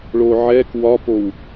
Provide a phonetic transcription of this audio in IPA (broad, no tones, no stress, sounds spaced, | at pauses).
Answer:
ɭ o ʕ ɛ k w ɒ p o w